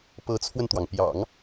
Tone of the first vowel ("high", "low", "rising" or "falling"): rising